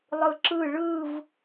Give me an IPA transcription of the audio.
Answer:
lˠ ɯ ǁ ɯ ɭ ɯ v

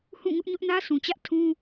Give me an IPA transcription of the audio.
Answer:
h ũ˦˨ ŋ ʊ˦ ʔ ɲ ʊ˦ ʔ n ä˦ sʰ ũ˨ t͡ɕ ä˦ ʔ tʰ ũ˦

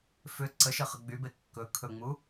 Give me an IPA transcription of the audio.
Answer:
f ʏ ǀ ə ʃ ə χ ə ɡ͡b y b e kː ɵ kʰ ɵ ŋ͡m u

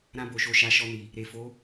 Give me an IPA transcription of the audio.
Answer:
ɾ ã˧ b o˨ ʃ o˨ ʃ a˨˦ ʃ ɔ˧ n i˨ | ɾ e˨ f o˨˦

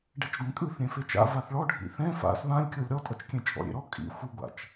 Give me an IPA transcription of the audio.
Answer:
ɖ ɛ t͡ʃ ɡʷ ɛ̃ kʼ ɯ θ ɾʲ ɛ̃ f e t͡ʃ a̰ v a θ ɭ ɔ ɖʱ ḭ θ ɛ̃ f a̰ s β ã lʲ kʲ ɤ lʲ ɾ ɔ tʼ ɔ t͡ʃ kʲ ɛ̃ t͡ʃʼ ɔ̰ ɾʲ ḛ ɾ ɔ kʼ ḭ xʷ ɯ ɡʷ a̰ t͡ʃ

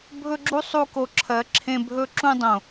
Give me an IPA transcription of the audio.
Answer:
bʱ ɵ˦ ɡ͡ǁ u˦ sˤ u˧ k o˨ ǁʰ ɜ˨˦ ǁʰ ẽ˧ bʱ ɵː˦ ǁ ũ˦ dˤ õ˨

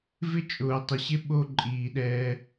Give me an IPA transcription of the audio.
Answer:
v ɪ˦ t͡ʃʼ ʊː˨ tˤ ɪ˨ ɕ ɪ˦ ɓ o˦ ǃʼ iː˨ ɗ ɛː˦

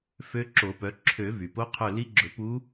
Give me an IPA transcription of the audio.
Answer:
f ø˧˥ ǁ o˨˩˦ p œ˩˥ ǁʰ ø˨˩˦ v y˩ p o˧˥ qʰ œ˦˨ l i˧˥ ɡ͡ǁ ɵ˨˩˦ p u˧˥

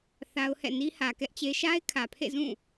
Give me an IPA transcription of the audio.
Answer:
θ a˦ ʊ̯ h ɛ̰˦˨ n i˦ h ä˨ k ɛ˦ ʔ t͡ɕ e˦ ʃ a˦ ɪ̯ kʰ ä˨ pʰ ḛ˦˨ z ũ˦˨

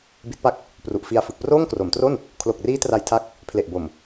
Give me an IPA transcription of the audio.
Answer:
b i˦˥ t̚ p a˦˥ k̚ | p r u˨˩ ʔ f i˧ a̯ f ɯ˨˩ k̚ p r oː˥˩ ŋ k r o˩˦ m t r o˥˩ n | kʰ l o˨˩ k̚ r iː˦˥ t r a˧ j tʰ a˦˥ k̚ | pʰ l e˨˩ ʔ b o˨˩ m

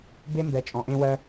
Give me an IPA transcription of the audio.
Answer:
b e˥ m b ɛ˧ t͡ʃʼ ɔ̃˧ ʔ ẽ˥ w ɜ˥

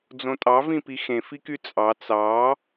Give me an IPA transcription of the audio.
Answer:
d͡z õ tʼ ɑ v ĩ p i x ẽ f i k y t͡sʼ ɑ t͡s ɑ

